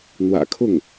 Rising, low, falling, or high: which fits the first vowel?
low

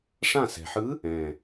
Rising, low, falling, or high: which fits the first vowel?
falling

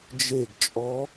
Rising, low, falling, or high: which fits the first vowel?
falling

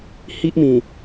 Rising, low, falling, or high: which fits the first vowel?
high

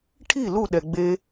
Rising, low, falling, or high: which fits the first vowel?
falling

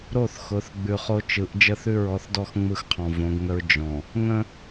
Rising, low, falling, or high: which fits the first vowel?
falling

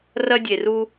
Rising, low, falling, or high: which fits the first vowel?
high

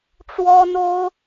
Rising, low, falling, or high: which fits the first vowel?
high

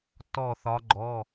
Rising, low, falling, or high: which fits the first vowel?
falling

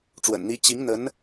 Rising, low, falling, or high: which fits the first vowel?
low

